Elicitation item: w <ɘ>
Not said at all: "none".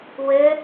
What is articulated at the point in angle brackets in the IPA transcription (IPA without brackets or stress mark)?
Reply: ɘ